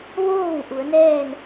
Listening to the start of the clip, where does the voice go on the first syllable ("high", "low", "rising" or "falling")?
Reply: falling